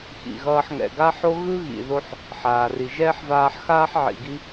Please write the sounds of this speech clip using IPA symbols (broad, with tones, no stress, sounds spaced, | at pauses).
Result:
x ḭ˨ ɣ ʌː˦ ħ ŋ ɛ̰˨ ɡ a˦ ħ o˦ ɣ ɯ˦ ɣ ḭ˨ ð o˦ ħ | ħ aː˨ r i˨ ʒ ɛː˦ ħ v aː˧ ħ x aː˦ ħ ʕ ḭ˨ ɡ i˦